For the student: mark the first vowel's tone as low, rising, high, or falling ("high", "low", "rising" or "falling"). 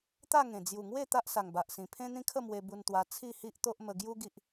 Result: falling